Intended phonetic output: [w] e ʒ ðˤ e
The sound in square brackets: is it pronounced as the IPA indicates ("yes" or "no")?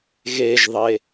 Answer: no